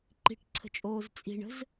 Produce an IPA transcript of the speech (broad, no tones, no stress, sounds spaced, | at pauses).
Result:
ǃ i̤ ʈ ǀʰ ə̤ t͡ʃʼ oː z t͡sʼ i̤ ɳ ə̤ z